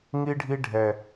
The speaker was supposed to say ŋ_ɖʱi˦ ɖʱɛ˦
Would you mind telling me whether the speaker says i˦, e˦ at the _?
i˦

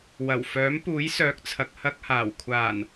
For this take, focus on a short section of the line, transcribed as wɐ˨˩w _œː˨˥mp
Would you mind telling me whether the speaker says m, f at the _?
f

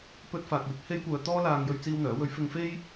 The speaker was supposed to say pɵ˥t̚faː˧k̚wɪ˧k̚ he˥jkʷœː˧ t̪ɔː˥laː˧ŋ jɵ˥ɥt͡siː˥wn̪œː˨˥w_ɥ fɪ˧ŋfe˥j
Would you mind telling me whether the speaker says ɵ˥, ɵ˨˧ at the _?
ɵ˥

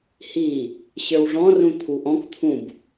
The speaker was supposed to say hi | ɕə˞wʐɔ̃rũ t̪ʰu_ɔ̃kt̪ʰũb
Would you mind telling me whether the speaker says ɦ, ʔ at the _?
ʔ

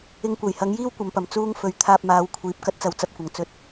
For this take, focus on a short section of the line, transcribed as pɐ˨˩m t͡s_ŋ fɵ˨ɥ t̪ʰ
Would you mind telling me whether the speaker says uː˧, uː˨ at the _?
uː˧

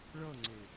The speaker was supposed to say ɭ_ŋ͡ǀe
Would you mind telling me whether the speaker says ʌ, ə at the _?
ʌ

